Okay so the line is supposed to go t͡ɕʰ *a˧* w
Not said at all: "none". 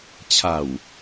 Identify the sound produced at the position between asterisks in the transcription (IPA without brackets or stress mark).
a˨˩